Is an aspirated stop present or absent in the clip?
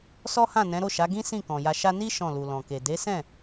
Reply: absent